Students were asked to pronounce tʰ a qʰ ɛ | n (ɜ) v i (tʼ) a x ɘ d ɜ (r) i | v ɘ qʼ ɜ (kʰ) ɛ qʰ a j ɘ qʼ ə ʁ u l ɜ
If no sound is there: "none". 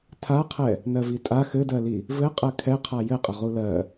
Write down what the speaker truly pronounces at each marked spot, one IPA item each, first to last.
ɜ, tʼ, l, kʰ

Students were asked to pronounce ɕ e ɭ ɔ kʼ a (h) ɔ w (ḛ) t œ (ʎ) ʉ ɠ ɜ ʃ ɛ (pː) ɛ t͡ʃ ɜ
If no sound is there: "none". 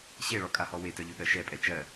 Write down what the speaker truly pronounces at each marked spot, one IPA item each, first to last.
h, e, ʎ, pʼ

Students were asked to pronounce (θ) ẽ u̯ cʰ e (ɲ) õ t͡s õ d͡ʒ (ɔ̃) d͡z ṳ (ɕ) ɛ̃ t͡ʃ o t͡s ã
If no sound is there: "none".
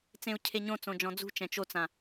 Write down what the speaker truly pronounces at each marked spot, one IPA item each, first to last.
t͡s, ɲ, ɔ̃, t͡ʃ

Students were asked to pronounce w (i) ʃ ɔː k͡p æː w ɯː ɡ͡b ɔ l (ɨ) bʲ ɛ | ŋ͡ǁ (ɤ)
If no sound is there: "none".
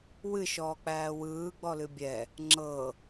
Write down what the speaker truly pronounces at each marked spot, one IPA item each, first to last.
ɨ, ɨ, ɤ

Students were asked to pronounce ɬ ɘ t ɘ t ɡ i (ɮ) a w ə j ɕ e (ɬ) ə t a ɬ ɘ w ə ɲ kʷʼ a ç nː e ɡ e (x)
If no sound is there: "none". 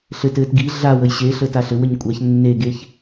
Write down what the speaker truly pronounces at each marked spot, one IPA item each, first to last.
ɮ, ɬ, ç

